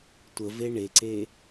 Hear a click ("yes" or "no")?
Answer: yes